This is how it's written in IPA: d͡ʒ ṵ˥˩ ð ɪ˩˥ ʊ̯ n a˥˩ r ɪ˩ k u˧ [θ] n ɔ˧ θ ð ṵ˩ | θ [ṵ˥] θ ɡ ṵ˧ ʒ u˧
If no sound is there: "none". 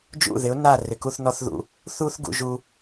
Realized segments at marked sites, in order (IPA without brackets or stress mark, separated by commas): θ, u˥